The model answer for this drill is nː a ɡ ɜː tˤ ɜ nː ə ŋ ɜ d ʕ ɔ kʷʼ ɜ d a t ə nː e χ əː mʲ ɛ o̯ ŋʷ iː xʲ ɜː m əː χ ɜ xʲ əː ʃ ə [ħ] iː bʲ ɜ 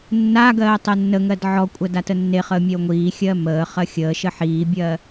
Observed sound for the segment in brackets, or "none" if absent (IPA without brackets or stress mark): ħ